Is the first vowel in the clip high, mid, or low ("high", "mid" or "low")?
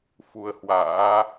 high